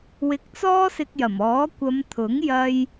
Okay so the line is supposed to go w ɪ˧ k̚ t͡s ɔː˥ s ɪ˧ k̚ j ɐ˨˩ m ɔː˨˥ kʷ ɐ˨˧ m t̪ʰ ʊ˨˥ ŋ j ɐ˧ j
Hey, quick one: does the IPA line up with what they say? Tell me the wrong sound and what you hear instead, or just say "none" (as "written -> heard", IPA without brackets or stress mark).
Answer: none